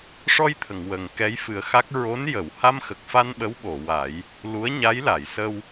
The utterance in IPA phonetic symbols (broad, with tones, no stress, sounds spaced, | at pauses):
ʂ ɔ˧ j t̪ʰ ə˨˩˨ ŋ w ə˨˩ ŋ k ɛ˧˥ j f ɨ˨˩˦ ə̯ x a˦˥ k̚ ɹ o˧˥ n j ə˨˩˨ w h a˧ m x ə˨˩ k̚ f a˧ n ɓ ə˧˥ w ɓ o˨˩˨ w a˨˩˦ j | l u˧˥ ə̯ ɲ a˧˥ j l a˨˩˨ j s ə˧ w